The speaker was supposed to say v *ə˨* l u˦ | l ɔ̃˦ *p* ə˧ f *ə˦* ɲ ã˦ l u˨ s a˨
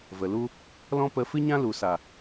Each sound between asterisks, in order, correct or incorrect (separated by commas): correct, correct, incorrect